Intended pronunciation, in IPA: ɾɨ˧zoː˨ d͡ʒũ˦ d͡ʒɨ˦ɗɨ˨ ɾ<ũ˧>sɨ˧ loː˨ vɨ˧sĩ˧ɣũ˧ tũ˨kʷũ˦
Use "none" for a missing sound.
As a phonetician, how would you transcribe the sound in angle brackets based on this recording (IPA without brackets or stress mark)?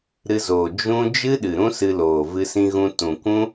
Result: ũ˦